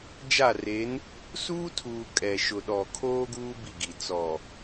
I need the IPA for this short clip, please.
d͡ʒ a˦˨ r e˨˦ n | s uː˦ tʰ uː˨ kʼ ɛ˨ ʃ ʊ˨ ɗ ɔ˨ kʰ oː˦ ɡ uː˦ b i˦˨ ɡ i˨ t͡s ɔ˨

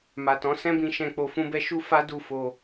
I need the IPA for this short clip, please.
m a˨ t ɔ̃˨˦ s ɛ̃˦ b ĩ˧ ʃ ɛ̃˧ k͡p o˧ f ũ˦ b ɛ˦ ʃ u˦ f a˦ d u˦˨ f o˧

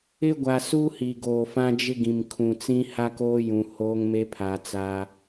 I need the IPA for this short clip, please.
ɪ˦ ɡʷ a˨ s u˦ h i˨ ɡ oː˨ f ã˦ d͡ʒ ɪ˦ ɡ ĩ˨ m kʰ ũ˨ t͡s ĩ˦ h a˦ k oː˦ j ũ˨ h oː˦ ŋ m e˦ pʰ a˨ t͡s a˦

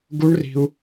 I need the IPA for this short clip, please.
ɡ u˦˥ ɳ r i̤˧ u̯

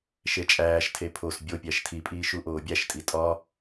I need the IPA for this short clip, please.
ʃ e t͡ʃʼ æː ʃ tʰ e pʰ o s bʲ o pʲ æ ʃ tʰ i pʼ iː ʃ u ʔ oː bʲ æ ʃ tʼ i tʼ ɒ

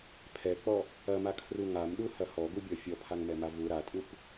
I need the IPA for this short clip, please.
pʰ ɛ k͡p ɔ | ɐ m a kʰ r u ŋ a m ɗ u h ɐ h ɔ ɡ u bʲ ɔ fʲ ɔ pʰ a ŋ m ɛ m a v u ɾ a tʼ u p

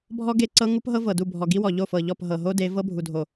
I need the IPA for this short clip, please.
bʱ ɔ˦ ɡ e˦˨ ǀ ɤ˦ ŋ u˦ p ɦ ɤ˦ v ɤ˨ d u˦˨ bʱ ɔ˨ ɡ i˦ w ɔ˨ ʎ o˦˨ f ɤ˨ ʎ ɔ˦˨ p ɦ ɤ˨ ɦ o˦ d e˨˦ v ɤ˦ bʱ u˨ dʱ o˨

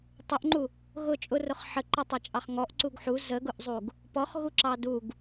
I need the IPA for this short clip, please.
tˤ ʊ ʔ ŋ͡ǃ u | ɣ ʊ t͡ʃʼ ʊ r ʊ χ ħ ə ǃ ʌ tˤ ʌ t͡ʃʼ ɑ χ ŋ ɔ ʔ ǀ u ɡ ħ u z ə ɡ ʊ ʔ zˤ u ɡ | p ɔ χ ɣ u ǁ ɑ d u ɡ

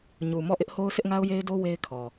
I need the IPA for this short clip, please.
ɲ u˨ m ɔ˦˨ ʔ ɪ˦ ʔ h o˦ ʊ̯ s ɪ˦ ʔ ŋ a˦ ʊ̯ j e˦ ɪ̯ d o˦ w e˦ ɪ̯ kʰ ɔ˨

